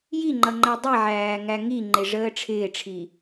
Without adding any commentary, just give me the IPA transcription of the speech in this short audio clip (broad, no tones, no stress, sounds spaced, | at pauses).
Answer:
j i ŋ͡ǃ ʌ ŋ͡ǃ æ dˤ i ʕ æː ŋ æ ŋ i ŋ͡ǃ ɪ ʐ əː ʈ͡ʂʰ ɪː ʈ͡ʂʰ i